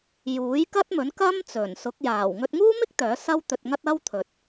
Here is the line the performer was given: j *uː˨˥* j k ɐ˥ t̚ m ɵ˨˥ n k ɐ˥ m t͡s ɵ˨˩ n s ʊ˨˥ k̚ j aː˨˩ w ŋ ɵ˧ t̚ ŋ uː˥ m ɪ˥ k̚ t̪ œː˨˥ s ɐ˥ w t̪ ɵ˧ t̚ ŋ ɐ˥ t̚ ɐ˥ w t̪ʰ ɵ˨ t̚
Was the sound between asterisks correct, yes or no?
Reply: yes